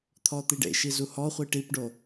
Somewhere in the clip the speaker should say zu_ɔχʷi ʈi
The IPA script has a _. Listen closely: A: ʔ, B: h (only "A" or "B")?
B